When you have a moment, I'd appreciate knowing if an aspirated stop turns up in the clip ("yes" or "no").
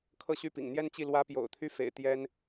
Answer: yes